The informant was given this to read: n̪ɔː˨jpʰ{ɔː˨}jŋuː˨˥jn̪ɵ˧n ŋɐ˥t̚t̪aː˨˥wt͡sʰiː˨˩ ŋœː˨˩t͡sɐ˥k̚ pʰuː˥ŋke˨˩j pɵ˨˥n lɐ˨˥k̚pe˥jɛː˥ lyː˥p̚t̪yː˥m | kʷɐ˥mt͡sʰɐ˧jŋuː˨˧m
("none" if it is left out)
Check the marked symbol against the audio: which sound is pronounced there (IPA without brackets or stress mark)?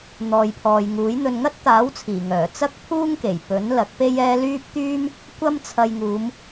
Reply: ɔː˨